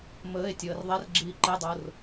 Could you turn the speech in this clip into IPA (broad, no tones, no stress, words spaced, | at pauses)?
məːe̯tʲəːr ðˤɛrɡ͡ǁiː ǃedˤor